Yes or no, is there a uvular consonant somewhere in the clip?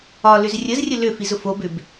no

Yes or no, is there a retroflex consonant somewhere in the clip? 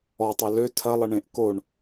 yes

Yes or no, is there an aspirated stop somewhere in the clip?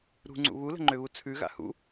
yes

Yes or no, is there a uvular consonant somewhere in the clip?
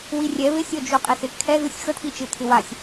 yes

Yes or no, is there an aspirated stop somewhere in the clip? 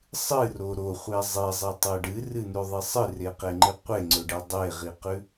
no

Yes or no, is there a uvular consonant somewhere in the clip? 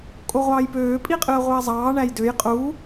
yes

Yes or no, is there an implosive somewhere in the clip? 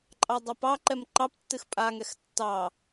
no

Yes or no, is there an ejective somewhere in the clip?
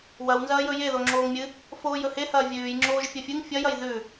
no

